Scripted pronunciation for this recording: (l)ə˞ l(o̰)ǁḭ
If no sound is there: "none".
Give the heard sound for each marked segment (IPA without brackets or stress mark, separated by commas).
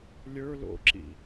lʲ, o̰